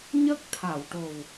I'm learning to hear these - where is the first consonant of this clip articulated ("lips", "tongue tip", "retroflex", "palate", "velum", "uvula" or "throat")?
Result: palate